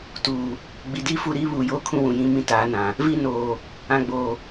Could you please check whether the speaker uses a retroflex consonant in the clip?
no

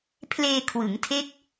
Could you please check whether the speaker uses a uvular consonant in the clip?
no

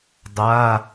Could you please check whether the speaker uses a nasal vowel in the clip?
no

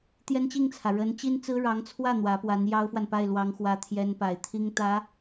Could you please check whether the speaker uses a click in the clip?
no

